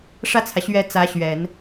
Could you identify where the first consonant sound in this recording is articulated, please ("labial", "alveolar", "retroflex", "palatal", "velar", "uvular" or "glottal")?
retroflex